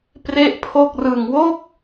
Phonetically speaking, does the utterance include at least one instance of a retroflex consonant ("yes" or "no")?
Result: no